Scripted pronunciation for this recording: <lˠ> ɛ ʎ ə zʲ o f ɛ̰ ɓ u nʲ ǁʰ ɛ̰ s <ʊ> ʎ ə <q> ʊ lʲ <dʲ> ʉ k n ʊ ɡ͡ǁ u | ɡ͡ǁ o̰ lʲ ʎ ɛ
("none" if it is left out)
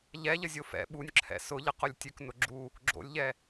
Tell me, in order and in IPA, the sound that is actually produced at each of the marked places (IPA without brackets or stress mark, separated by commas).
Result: ʎ, ʊ, q, tʲ